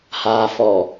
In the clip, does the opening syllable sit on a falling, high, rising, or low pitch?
low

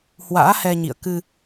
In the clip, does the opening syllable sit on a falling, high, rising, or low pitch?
rising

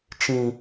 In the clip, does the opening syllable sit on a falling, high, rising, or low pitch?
low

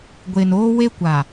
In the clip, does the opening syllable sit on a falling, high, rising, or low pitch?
low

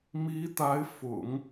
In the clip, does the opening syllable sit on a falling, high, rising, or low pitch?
rising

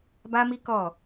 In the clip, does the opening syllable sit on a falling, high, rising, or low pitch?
high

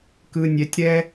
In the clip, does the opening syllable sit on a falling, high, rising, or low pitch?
low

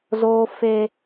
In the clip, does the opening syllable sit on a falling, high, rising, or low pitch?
high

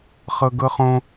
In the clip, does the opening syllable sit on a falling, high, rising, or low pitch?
high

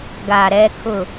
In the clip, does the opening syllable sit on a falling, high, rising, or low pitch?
low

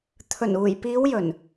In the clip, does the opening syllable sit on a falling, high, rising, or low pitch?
low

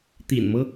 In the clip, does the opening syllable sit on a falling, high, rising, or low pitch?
low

